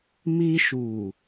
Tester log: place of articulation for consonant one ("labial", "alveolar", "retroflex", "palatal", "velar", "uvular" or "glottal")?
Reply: labial